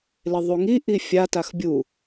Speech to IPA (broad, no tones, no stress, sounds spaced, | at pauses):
l ɪ ðˤ u ŋ i ʔ i fʲ a t a x bʲ u